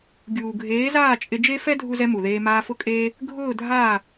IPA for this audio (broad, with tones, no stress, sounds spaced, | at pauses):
ɡʲ uː˨ ɡʱ eː˨˦ z aː˦˨ t͡ʃʼ ɪ˧ d͡ʒ e˦ f ɛ˦ dʱ u˦ z ɛ˦ m u˨ ð eː˧ m aː˧ f ʊ˦ kʼ eː˦ | ɡʱ ʊː˦˨ dʱ aː˦˨